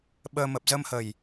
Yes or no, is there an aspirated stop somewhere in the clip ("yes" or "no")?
no